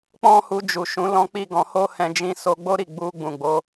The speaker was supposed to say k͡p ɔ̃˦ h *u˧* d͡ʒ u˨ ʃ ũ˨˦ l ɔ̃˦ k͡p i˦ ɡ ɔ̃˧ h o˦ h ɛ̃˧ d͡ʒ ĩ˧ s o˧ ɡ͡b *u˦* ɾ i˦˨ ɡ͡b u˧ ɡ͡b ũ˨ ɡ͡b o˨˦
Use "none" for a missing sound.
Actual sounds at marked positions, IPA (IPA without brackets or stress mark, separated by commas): u˧, o˦